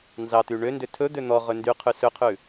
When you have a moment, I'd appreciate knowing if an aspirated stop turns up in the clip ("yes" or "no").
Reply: yes